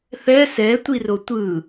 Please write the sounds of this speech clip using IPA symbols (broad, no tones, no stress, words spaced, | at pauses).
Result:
θɛ sɛtʷiro tʷɯ